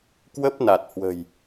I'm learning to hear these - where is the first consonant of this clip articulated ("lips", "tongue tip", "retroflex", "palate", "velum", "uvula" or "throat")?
velum